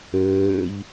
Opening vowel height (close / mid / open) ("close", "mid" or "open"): mid